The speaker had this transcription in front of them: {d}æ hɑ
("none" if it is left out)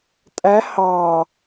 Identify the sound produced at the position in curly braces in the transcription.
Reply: tʼ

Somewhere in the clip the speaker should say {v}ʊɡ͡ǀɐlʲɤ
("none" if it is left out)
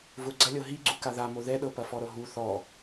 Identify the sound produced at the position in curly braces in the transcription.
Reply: v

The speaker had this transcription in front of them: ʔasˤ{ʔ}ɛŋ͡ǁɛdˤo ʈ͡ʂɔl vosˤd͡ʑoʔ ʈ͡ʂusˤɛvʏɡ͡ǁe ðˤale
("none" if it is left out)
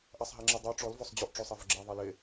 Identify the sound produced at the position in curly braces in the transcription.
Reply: ɦ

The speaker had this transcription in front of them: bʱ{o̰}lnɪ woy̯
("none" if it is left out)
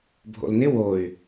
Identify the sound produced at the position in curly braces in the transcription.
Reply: o̰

